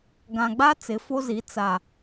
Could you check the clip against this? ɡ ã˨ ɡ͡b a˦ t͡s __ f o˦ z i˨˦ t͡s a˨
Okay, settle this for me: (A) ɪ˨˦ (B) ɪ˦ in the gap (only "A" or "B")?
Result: A